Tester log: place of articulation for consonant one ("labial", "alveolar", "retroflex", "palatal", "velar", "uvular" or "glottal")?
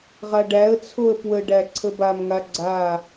uvular